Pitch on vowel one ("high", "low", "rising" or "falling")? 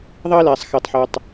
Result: high